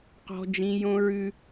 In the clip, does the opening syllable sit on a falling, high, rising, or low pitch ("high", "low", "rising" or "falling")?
high